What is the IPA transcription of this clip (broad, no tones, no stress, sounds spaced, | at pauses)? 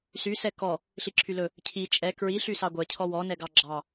s y s ɛ k ɔ | ɬ i ǁʰ y l ɵ | cʰ i t͡ʃʼ ɛ k ɹ i ɬ y s ɑ ɡʷ ɛ cʰ ɔ w ɔ n ɛ ɡ ɑ ɡ͡ǁ ɑ